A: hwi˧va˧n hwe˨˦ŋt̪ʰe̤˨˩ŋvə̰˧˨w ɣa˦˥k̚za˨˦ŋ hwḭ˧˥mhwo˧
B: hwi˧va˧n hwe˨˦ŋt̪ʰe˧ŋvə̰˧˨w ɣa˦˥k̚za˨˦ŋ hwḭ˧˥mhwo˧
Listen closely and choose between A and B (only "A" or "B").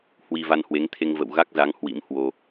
B